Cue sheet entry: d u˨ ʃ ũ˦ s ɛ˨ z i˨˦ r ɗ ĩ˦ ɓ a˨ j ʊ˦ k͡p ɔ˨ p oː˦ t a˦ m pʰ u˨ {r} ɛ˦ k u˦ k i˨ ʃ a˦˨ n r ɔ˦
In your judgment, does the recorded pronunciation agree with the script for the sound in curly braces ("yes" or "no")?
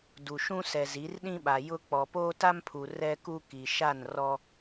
yes